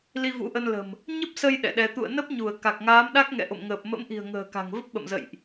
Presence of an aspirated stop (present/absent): absent